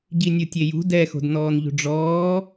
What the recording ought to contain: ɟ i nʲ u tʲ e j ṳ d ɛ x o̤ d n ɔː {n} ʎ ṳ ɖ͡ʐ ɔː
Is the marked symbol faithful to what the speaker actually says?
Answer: yes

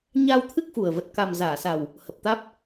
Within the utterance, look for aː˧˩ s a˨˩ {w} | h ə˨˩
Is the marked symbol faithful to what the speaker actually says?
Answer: yes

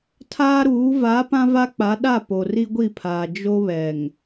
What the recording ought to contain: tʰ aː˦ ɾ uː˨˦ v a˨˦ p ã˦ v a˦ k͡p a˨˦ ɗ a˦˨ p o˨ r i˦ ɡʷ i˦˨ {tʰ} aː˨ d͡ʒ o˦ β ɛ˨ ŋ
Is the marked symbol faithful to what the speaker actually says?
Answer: no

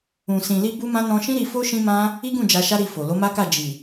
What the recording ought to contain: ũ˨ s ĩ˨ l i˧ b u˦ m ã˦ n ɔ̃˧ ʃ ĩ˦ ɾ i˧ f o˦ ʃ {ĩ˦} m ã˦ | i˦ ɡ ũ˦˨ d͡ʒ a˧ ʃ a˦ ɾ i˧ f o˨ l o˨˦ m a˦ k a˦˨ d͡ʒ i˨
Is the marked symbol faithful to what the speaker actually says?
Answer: yes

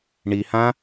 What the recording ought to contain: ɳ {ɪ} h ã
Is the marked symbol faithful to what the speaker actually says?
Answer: no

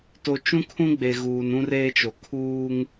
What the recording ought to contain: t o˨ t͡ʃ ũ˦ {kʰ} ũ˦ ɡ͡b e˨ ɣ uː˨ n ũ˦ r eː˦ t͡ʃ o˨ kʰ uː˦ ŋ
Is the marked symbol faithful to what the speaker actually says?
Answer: yes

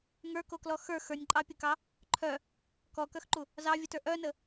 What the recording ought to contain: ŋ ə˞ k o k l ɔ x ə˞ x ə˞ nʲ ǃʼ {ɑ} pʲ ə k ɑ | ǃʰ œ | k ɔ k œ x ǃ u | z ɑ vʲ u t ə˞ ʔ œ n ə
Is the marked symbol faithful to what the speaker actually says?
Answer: yes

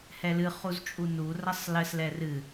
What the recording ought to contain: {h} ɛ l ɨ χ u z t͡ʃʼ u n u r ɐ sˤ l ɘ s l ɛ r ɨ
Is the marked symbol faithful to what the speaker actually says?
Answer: yes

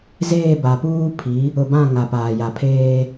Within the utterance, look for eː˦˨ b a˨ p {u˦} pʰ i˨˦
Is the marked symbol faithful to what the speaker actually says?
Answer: no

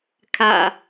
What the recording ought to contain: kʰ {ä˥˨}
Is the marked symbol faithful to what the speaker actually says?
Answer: no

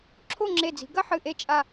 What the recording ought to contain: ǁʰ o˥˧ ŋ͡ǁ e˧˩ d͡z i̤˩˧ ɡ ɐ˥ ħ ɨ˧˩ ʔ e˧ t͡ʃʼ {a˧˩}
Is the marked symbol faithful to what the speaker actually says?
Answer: yes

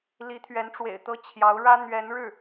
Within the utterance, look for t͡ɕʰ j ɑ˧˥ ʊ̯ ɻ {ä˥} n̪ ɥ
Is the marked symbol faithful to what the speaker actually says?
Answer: yes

